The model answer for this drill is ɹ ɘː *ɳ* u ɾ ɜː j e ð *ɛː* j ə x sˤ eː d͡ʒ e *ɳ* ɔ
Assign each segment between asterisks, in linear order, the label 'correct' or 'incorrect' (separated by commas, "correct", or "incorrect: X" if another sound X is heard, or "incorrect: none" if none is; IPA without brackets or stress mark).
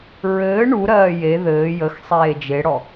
correct, incorrect: ɘː, incorrect: ɽ